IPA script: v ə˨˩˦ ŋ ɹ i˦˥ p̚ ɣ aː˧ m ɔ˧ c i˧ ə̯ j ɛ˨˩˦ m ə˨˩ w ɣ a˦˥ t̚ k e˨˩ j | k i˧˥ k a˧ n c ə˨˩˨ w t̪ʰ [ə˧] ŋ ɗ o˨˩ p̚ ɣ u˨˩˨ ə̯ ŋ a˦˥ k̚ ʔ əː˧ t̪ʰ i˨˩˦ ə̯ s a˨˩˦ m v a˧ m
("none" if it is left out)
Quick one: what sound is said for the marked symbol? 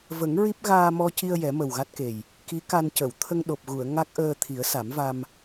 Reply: ə˧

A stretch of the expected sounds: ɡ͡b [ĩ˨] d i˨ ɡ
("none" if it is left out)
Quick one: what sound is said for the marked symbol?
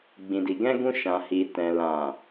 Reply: ĩ˨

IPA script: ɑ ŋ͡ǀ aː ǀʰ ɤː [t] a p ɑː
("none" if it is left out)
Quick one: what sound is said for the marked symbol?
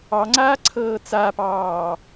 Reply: t͡s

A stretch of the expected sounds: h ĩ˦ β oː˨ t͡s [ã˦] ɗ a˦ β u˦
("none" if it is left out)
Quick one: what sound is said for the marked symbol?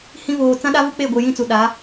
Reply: ã˦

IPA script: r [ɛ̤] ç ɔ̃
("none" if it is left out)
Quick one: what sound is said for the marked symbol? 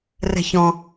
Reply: ɛ̤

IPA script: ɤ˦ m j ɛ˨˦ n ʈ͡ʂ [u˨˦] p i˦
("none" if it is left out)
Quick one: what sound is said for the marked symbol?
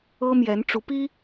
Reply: u˨˦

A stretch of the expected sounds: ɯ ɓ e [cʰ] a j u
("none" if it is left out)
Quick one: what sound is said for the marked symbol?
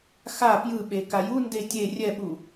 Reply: k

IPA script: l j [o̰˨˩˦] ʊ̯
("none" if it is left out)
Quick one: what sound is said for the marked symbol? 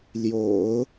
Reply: o̰˨˩˦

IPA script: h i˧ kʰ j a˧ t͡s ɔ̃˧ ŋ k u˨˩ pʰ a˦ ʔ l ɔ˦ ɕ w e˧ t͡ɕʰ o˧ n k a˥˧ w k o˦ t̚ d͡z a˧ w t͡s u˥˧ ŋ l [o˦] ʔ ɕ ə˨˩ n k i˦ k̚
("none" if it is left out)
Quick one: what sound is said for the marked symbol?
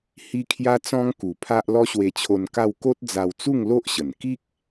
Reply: o˦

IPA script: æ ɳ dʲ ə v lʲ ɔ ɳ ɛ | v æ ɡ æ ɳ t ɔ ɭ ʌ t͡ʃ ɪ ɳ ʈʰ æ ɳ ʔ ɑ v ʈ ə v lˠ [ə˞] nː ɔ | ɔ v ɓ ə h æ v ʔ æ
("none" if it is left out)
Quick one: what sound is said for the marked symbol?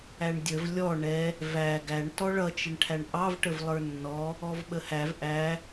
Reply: ə˞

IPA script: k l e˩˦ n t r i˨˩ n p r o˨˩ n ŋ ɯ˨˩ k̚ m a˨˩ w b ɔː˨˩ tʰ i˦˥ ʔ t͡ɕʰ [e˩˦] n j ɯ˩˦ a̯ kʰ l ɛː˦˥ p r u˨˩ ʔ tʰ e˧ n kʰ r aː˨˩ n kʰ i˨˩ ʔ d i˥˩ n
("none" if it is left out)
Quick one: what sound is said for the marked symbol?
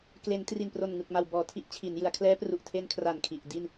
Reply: i˩˦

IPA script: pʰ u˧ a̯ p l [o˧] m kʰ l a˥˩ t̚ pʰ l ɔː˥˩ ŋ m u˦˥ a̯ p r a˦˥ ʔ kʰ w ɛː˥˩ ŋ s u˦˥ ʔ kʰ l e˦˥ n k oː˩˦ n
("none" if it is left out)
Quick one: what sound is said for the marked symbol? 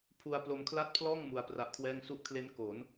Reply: o˧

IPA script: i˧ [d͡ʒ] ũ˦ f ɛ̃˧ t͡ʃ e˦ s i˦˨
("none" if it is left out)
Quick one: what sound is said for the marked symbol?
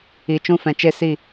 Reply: t͡ʃ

